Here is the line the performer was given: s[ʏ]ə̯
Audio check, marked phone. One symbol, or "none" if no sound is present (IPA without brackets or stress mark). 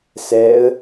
ɛ